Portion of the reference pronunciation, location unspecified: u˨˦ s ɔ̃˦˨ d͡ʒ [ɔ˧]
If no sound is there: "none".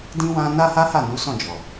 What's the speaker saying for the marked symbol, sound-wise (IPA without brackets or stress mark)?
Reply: ɔ˨